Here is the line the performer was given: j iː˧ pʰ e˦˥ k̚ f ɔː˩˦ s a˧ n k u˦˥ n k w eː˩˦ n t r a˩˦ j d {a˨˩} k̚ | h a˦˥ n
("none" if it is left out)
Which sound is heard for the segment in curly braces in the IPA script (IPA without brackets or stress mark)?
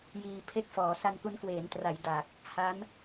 a˨˩